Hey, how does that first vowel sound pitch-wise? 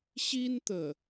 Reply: high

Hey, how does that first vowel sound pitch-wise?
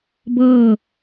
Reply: falling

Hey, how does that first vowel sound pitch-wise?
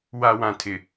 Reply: low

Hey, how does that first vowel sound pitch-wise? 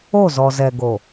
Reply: falling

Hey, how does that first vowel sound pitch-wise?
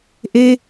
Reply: high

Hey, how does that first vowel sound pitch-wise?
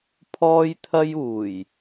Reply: high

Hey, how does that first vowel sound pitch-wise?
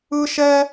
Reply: high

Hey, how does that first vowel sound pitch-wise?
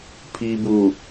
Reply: low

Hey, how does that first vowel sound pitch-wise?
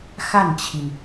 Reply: falling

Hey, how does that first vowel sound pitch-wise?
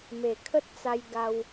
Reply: low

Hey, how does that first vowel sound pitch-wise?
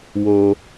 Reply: low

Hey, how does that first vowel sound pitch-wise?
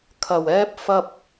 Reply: low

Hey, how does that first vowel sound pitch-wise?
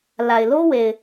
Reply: low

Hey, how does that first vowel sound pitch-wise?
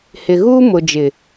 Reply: low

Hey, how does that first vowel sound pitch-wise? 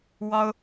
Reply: high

